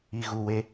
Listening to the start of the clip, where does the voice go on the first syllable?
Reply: low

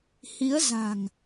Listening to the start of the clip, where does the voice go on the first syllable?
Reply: rising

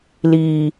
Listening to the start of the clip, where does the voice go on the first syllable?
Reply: low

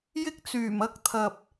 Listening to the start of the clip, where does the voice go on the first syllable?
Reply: high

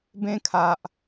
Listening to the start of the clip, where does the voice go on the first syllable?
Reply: high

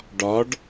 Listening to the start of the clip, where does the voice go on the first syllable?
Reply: rising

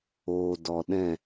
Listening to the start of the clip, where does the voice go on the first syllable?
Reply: low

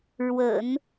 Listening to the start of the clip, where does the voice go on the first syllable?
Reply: low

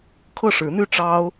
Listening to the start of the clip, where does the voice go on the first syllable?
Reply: falling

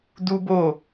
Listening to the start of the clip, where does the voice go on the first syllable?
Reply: high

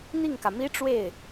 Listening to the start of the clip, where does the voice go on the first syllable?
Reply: falling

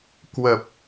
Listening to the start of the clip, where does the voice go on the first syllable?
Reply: low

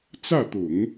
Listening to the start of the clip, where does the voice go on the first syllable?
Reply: falling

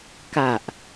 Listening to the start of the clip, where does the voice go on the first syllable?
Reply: low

